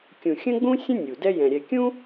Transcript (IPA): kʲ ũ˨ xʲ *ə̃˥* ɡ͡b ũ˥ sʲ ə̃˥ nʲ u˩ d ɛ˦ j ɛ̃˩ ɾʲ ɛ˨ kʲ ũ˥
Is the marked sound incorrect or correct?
correct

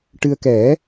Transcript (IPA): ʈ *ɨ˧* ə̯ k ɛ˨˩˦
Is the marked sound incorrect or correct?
correct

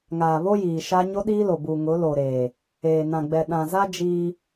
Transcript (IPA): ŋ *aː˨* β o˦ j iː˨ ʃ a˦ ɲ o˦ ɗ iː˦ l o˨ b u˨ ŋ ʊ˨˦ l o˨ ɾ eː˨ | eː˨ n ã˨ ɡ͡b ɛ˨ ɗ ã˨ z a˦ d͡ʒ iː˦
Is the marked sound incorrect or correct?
correct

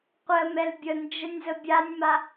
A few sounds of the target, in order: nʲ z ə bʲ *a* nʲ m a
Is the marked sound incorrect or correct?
correct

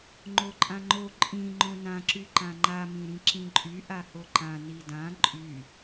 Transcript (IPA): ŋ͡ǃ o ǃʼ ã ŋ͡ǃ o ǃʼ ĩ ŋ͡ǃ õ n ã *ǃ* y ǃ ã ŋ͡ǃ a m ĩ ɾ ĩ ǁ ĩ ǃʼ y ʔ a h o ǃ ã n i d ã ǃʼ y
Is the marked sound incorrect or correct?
incorrect: ǁ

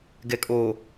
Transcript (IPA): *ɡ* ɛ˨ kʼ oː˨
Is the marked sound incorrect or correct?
correct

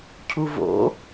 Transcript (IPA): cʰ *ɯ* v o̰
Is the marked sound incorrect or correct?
incorrect: u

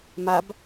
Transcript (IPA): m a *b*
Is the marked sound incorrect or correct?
correct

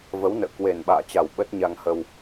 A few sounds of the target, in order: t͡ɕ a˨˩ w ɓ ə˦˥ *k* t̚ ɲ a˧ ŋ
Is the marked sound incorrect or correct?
incorrect: none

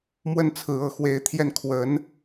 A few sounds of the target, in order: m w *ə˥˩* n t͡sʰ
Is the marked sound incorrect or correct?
correct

